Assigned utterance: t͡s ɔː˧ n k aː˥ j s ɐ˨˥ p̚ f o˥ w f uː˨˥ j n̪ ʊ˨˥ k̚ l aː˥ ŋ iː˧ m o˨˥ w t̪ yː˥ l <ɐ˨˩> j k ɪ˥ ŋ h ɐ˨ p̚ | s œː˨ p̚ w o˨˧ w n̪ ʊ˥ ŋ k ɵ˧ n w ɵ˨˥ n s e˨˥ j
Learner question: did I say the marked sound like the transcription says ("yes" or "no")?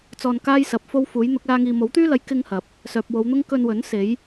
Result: no